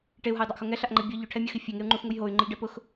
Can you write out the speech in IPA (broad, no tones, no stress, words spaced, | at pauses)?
ʈeu̯ɦajdˤaʔxo ŋɛɬaʔŋ͡ǃɛ bʲɔ ʎʊʈʰɛmʲɔxi fʲeŋeu̯ŋ͡ǃuxŋuj ɦoy̯ŋ͡ǃɪʎɖɛ pʊx